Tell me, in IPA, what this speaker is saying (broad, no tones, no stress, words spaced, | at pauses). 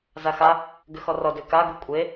zaxa | ɡʏxɔrɔ dʏka ɡukʷʼe